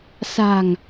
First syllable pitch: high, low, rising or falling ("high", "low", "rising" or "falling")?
low